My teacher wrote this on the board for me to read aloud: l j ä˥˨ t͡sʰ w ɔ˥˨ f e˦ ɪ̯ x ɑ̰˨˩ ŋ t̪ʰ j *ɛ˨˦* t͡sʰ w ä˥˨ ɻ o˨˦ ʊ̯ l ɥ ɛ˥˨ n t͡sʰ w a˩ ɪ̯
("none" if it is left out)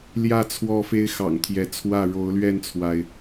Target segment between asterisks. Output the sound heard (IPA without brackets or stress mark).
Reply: ɛ˨˦